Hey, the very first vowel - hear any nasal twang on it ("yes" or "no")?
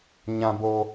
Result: yes